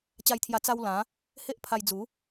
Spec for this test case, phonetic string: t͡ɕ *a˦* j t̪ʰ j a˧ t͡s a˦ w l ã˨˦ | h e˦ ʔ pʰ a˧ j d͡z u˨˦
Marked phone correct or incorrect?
incorrect